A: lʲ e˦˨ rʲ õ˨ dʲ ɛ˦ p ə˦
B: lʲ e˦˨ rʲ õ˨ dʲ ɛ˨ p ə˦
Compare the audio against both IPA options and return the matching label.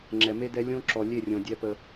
A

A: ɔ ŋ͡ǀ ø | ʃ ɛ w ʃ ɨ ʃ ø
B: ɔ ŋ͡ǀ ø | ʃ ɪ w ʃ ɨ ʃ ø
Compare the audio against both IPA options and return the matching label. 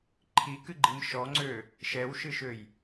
A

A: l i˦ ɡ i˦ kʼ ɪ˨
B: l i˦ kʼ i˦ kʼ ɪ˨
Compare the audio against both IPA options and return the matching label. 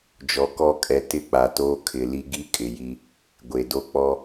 A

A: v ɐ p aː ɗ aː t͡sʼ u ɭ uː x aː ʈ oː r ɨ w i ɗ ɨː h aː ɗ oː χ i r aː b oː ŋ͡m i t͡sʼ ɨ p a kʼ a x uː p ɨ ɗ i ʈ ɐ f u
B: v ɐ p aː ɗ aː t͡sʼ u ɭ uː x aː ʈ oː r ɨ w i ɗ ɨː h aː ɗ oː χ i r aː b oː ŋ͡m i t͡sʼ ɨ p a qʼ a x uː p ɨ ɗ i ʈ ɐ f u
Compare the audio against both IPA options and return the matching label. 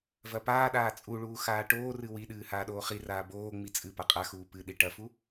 B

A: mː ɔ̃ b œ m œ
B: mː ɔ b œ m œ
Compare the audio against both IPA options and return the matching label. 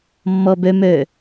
B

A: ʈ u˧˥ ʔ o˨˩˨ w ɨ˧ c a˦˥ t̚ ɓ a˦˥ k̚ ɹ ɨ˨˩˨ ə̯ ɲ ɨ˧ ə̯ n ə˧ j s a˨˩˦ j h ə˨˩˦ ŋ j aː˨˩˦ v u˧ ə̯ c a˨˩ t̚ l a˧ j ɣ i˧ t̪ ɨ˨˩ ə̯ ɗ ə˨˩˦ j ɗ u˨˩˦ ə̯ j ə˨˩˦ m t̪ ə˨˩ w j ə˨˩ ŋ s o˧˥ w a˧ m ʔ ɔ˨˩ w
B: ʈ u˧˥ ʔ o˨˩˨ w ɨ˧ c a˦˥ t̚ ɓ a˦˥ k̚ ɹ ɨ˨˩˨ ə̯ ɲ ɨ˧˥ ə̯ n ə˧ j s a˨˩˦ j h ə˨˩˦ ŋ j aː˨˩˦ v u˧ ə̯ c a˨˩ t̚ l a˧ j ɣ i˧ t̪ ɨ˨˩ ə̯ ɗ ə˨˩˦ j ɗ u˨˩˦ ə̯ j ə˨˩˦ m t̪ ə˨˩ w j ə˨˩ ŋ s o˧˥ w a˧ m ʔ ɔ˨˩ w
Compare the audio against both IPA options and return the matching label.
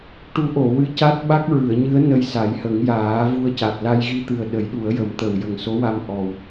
B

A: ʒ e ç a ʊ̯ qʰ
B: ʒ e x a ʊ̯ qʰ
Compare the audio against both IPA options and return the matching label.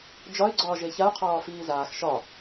A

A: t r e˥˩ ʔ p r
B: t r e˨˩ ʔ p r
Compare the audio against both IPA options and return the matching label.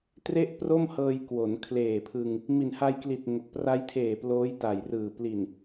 A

